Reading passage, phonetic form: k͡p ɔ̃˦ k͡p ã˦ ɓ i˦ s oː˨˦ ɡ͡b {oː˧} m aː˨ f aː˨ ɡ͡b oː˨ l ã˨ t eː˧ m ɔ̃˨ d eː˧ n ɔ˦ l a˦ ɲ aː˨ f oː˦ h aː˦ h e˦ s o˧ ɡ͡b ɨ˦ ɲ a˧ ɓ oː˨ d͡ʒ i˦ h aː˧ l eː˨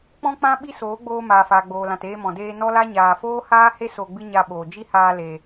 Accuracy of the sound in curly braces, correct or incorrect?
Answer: correct